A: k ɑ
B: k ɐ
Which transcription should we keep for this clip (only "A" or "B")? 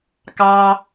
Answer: A